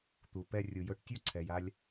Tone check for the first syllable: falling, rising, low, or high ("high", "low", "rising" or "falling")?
low